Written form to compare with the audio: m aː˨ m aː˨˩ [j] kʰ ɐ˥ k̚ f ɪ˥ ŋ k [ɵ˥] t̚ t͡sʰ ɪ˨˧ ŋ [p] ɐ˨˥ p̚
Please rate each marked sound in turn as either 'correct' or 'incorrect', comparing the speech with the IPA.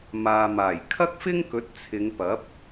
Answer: correct, incorrect, correct

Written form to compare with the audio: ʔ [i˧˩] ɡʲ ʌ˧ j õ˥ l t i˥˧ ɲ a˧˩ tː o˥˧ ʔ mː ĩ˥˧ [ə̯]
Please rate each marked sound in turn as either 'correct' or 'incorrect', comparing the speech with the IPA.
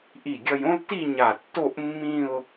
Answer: correct, incorrect

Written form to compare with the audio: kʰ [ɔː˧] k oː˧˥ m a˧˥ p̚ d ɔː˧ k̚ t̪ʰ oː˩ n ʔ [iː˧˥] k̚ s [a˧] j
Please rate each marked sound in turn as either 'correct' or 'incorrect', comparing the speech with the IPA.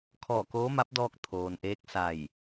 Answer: incorrect, incorrect, incorrect

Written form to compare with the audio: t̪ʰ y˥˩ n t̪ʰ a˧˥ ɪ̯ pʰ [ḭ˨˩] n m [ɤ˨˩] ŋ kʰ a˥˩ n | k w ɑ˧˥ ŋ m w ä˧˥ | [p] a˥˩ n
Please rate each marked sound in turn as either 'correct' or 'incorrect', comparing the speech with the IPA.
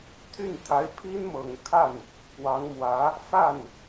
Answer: incorrect, correct, incorrect

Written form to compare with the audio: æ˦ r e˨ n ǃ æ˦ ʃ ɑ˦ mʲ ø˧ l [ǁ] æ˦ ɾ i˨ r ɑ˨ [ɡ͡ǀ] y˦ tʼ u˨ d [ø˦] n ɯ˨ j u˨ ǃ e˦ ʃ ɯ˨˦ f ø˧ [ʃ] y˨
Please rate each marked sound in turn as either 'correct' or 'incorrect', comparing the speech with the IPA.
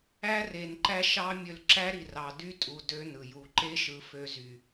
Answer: correct, incorrect, correct, incorrect

